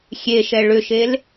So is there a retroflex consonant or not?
yes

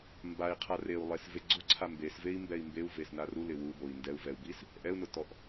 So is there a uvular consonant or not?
yes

